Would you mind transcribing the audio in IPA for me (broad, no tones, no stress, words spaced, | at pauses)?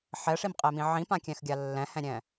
ħɛʂimqʼemĩ ʕĩpãkʲɛ̃xɡʲa lːɛ̃hɛ̃ɾʲɛ̃